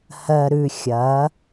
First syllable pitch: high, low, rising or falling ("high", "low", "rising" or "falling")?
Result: low